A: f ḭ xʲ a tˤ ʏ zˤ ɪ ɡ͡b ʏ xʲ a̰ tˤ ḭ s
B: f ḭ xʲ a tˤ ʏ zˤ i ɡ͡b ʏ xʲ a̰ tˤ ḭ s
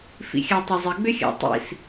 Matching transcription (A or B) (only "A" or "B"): A